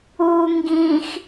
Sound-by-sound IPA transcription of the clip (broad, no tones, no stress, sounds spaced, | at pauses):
u ŋ ɡ ĩ x